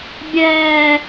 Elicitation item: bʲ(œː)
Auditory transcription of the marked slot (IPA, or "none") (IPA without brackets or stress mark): ɛː